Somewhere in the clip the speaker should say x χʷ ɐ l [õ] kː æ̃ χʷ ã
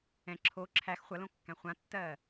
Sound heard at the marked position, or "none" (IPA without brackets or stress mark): õ